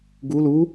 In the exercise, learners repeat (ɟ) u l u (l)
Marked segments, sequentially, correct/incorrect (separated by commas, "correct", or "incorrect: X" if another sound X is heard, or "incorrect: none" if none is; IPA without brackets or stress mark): incorrect: ɡ, incorrect: none